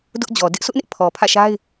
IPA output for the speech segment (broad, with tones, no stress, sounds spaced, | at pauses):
d ʊ˦ ʔ d͡ʑ ɔ˨ d ɪ˦ ʔ sʰ ʊ˦ ʔ n ɪ˦ ʔ pʰ ɔ˨ pʰ ä̰˦˨ ʃ a˦ ɪ̯